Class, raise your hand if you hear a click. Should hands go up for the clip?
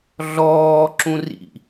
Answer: yes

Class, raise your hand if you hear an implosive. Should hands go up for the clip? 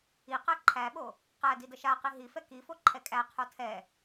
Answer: yes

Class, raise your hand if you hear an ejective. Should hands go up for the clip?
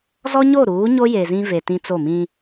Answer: no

